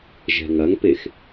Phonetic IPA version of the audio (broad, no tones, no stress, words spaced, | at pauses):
ʒɛ̤ŋɐŋpex